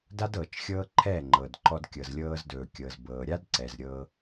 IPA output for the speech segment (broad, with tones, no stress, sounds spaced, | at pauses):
d a˦ d ɤː˨ t͡ʃ xʲ ɤː˦ ǃʰ ɛː˦˨ ŋ͡ǃ ɤː˨ d ǃ ɔ˧ d kʲ ɤ˨ z lʲ ɤː˧ z d ɵː˨ kʲ ɤ˨ z b ɤː˨ ɾʲ a˦ d ǀ ɛ˨ z ɾʲ ɤ˧